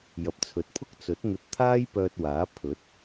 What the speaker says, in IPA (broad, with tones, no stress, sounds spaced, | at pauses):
j ɐ˨ p̚ t͡sʰ ɵ˨˥ t̚ pʰ ʊ˥ k̚ t͡s ɵ˨˥ t̚ n̪ ɵ˧ t̚ t̪ʰ aː˥ j p œː˧ t̚ w aː˨˥ pʰ ɵ˨˥ t̚